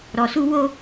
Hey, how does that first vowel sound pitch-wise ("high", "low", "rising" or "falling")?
low